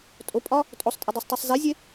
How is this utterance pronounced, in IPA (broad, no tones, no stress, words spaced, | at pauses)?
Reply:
tʼopʼɒ | tʼosˤtʼɛdˤɤsˤtˤasˤ zezʲe